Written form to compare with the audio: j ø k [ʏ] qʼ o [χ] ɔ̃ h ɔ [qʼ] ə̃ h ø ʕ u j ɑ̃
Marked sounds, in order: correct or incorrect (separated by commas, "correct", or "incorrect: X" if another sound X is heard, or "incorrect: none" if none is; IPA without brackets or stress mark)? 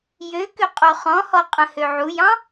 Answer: correct, correct, correct